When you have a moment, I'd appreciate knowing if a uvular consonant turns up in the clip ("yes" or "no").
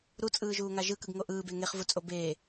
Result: yes